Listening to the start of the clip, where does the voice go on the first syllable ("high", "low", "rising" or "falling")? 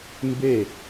falling